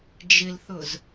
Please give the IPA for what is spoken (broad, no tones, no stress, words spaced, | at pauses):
d͡ʒɪlθʊz